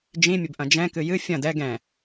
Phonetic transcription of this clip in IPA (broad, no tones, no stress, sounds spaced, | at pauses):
d͡ʒ ĩ mʲ ɘ b ʔ ɐ̃ d͡ʒ ɛ̃ k ɨ j ɨ fʲ ɐ̃ d ɛ ɡ ɛ̃